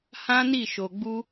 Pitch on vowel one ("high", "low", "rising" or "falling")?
high